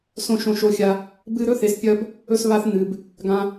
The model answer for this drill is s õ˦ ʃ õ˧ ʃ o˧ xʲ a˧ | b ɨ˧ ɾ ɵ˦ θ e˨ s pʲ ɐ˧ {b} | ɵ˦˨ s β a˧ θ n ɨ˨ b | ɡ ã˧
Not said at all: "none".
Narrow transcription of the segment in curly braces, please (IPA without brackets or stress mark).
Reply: b